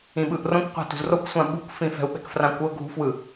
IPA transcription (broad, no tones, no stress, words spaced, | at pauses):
ĩɓɯʔrõkʷqʷa̤ tṳzrokʷsʷã ɓṳkfĩ fɛ̤u̯ɓɛ̤kfrãkʷɤ ɡʱṳfwɯ